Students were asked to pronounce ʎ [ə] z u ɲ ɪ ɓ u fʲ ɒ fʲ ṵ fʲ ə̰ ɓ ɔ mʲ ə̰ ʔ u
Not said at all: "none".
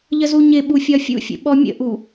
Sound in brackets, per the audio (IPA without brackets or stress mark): ə